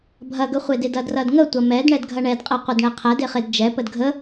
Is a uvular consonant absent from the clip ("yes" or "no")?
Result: no